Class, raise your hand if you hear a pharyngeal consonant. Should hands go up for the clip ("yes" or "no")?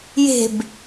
no